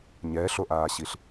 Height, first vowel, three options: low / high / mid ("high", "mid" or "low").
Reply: mid